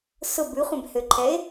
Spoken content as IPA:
s ʊ b ʉ χʷ ɛ̃ b h ø ǃʰ ɛ e̯

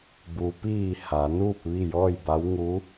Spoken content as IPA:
b u˩ p iː˧˩ h a˩˧ n uː˥˨ p̚ ʋ i˥˨ j ɔː˥˨ j b a˧˥ w ŋ u˧˥

